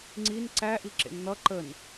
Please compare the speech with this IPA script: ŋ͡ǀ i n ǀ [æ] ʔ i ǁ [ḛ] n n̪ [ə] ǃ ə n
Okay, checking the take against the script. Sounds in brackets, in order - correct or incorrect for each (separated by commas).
correct, correct, incorrect